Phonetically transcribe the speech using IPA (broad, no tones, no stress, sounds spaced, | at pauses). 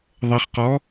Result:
ðˤ ɐ χ q ɔ